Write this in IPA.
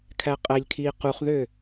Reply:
kʰ æ qʼ æ ʎ kʰ iː q u χ ð ø

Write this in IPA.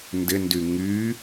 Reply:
n d ɪ n d y ŋ y

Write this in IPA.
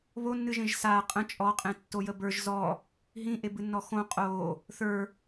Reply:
β o nː ɨ ʒ ẽ ʒ s a qʼ ə̃ t͡ʃʼ ɔ qʼ ẽ tː o j ə b ə˞ ʒ z ɔ | ɦ ĩ ʔ e b ɨ nː ɔ x õ qʼ o | θ ə˞

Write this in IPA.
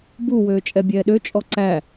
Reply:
b u w øː t͡ʃʼ ɛ bʲ ɛː ɗ ø t͡ʃʼ ɔ ǀ æ

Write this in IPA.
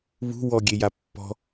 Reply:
β ṳ w ɔ ɡʲ e j a pː ɔ̤

